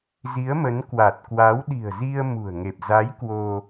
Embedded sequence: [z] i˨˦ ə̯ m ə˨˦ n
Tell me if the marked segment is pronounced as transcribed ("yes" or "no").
yes